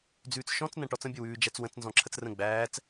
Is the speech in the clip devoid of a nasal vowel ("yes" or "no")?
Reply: no